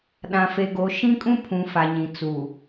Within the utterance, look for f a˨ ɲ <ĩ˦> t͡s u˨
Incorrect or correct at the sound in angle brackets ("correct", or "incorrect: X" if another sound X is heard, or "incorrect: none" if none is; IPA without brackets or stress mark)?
incorrect: ĩ˨